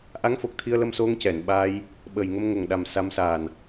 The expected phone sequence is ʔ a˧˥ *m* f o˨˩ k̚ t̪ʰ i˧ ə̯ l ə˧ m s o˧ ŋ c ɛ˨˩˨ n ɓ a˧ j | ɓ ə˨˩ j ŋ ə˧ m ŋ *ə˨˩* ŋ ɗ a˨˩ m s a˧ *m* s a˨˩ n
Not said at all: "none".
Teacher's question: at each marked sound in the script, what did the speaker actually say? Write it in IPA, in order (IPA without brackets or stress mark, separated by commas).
ŋ, ə˨˩, m